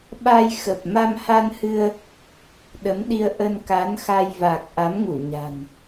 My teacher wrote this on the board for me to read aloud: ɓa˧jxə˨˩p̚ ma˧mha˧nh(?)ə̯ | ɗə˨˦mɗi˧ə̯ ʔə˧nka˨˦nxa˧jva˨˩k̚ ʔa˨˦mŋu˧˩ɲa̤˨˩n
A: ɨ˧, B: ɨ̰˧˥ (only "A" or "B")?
A